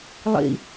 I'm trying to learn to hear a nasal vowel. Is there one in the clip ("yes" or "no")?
no